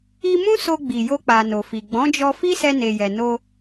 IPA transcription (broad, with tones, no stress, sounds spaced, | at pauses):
i˧ m ũ˦ s o˧ ɡ͡b i˨ j o˧ k͡p a˨ n o˨ f i˨ ɡ͡b ɔ̃˨˦ d͡ʒ ɔ˧ f i˦ s ɛ˧ n e˨ j ɛ˨ n o˧